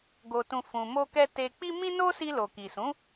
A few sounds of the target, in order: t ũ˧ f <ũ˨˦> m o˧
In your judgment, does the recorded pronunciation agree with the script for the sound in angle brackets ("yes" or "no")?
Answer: no